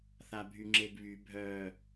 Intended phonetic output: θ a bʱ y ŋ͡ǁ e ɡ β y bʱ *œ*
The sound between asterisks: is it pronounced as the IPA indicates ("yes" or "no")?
yes